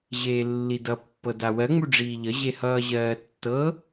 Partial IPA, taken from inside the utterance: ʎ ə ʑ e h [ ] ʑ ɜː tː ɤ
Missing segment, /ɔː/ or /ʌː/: ʌː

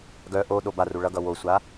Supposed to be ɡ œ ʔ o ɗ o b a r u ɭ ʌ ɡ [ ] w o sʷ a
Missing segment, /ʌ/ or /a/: ʌ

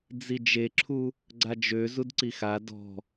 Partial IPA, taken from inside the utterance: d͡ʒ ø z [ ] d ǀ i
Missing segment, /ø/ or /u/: u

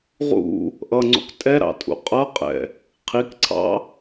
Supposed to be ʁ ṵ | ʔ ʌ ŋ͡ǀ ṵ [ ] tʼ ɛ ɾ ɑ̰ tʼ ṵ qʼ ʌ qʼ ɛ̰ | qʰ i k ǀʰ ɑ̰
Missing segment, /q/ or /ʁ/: q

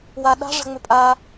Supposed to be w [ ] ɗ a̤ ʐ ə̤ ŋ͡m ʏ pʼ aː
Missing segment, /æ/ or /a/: a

